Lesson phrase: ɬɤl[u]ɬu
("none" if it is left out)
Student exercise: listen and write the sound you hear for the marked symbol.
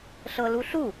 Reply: u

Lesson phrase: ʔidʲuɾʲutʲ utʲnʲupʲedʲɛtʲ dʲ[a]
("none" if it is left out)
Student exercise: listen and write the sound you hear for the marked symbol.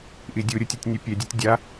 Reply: a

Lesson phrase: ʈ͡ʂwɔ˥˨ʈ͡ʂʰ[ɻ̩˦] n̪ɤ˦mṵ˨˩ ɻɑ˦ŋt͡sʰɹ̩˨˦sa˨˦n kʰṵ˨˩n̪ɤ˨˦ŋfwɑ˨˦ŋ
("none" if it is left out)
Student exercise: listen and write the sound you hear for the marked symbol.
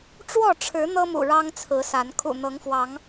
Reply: ɻ̩˨˦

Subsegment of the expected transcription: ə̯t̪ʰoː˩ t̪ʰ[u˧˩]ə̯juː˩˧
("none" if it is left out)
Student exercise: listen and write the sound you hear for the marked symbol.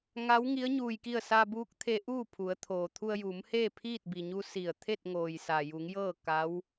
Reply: u˧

